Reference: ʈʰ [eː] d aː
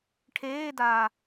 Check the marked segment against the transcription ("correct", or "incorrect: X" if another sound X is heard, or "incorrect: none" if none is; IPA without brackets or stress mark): correct